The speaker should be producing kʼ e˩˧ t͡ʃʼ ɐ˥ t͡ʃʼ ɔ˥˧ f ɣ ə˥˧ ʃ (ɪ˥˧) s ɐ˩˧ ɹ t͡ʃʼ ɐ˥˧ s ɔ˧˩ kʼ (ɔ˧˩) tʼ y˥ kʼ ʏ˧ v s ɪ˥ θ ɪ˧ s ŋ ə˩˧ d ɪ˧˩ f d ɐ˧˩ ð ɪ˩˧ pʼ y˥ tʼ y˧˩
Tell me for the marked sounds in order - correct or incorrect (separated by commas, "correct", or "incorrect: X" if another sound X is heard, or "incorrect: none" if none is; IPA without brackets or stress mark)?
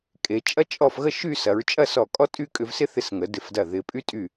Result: incorrect: y˥˧, incorrect: ɔ˥